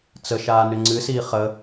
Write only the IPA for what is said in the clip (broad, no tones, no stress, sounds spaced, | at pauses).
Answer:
t͡s ə ʃ aː n ʏ ŋ͡ǀ ɨ s iː χ ə